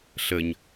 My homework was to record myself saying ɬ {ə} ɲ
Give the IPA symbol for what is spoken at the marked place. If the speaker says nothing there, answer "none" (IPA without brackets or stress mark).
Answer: ə